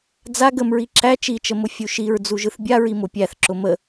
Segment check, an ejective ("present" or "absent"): absent